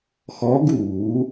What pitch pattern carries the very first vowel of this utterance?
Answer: rising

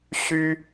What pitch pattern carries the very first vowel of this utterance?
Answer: high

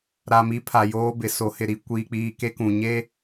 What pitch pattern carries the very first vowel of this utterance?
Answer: low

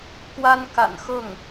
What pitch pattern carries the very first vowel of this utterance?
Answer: high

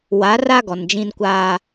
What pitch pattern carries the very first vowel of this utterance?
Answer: rising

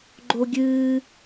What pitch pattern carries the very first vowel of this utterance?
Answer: high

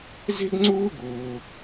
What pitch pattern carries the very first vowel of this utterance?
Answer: high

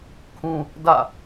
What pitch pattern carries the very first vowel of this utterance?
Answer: high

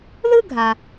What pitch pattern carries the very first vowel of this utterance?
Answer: high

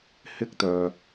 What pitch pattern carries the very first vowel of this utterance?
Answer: high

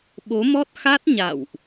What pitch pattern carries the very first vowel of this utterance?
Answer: rising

